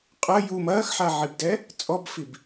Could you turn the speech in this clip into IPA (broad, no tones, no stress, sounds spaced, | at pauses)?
qʼ ɐ j u m ɐː x ħ a ʕ i b d ɛ | t͡sʼ ɔ b f i b